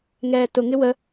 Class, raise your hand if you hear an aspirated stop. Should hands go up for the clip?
no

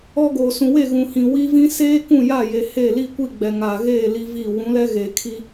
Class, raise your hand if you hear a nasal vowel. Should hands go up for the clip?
yes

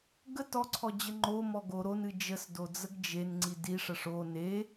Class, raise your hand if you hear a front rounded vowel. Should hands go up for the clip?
no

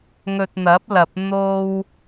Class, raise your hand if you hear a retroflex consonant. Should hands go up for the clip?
no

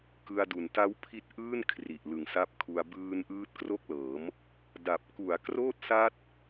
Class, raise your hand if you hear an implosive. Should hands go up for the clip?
no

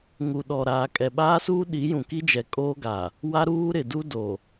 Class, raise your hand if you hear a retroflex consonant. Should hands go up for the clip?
no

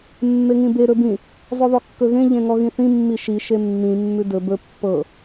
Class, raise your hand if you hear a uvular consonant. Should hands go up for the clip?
no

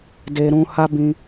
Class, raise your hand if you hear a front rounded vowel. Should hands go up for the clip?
no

